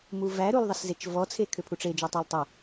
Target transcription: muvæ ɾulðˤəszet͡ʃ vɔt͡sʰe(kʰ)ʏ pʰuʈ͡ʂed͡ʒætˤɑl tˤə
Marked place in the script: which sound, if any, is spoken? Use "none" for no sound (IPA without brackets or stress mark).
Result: kʰ